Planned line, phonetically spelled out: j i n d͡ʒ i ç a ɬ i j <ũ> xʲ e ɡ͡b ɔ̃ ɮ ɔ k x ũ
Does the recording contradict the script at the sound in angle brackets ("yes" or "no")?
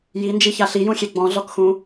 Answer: no